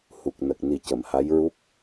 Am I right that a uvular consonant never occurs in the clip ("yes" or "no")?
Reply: yes